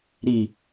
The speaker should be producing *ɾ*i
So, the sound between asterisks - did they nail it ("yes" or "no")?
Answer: yes